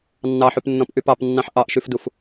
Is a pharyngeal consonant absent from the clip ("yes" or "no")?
no